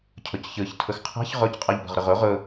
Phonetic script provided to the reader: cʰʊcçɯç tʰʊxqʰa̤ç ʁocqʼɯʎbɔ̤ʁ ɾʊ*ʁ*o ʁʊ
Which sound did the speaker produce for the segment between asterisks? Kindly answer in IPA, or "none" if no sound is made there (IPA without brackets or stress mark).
ʁ